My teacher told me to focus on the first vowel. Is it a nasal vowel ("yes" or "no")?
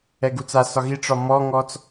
no